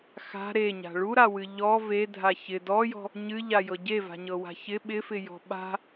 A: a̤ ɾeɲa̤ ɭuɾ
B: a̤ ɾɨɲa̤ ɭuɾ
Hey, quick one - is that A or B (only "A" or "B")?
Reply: A